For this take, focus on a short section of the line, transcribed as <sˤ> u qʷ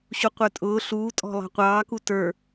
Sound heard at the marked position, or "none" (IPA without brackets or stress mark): ɕ